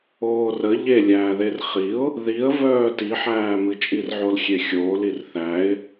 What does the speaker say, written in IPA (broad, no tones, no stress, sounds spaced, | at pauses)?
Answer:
oː r ə ʎ e lʲ æː ð e r χ i ʊ̯ | ð i ə̯ v œː t i ħ æː m ɨ t͡ʃʼ i r ʕ o l xʲ e xʲ oː l i r θ æ ɪ̯